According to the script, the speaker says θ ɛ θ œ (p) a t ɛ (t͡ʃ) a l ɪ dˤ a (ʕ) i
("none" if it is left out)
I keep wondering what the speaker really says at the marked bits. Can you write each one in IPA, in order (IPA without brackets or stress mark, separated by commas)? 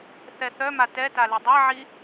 m, t, ʕ